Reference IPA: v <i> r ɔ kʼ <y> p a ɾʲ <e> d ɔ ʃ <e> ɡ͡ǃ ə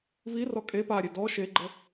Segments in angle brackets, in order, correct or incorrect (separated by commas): correct, incorrect, correct, correct